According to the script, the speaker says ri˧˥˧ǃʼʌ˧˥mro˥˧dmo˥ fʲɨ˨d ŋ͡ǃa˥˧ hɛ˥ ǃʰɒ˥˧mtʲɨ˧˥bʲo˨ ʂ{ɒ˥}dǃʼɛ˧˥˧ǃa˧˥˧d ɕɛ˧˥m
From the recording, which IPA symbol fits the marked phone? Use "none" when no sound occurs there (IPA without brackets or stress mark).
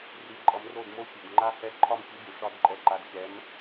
ɒ˥